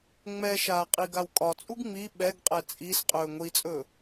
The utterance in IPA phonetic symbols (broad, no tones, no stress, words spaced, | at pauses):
ŋ͡mɛʃaː qʼiɡawkʼɒt͡sʼuɡ ŋ͡mi ɓɛɡqʼɛ t͡sʼis qʼɵːŋʷit͡sʼɵ